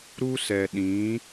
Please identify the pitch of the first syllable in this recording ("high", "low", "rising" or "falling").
high